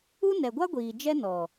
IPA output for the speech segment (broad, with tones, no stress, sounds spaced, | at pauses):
u˦ n ɛ˨ ɡʷ a˦ ɡʷ iː˨ d͡ʒ ɛ˦ n ɔ˨